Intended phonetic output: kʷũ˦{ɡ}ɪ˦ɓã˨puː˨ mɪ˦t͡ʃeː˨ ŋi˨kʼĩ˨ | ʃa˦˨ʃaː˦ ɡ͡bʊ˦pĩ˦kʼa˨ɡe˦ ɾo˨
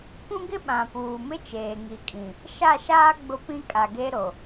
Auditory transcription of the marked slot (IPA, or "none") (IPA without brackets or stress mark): ɡ